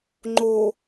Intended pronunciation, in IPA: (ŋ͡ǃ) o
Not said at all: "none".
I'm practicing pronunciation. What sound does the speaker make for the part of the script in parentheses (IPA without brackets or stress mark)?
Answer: ŋ͡ǃ